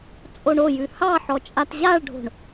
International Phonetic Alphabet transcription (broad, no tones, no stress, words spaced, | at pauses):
t͡sʼoɳojʉ hɑħɔ t͡ʃʼatʑaɭɖʱo̤ɳ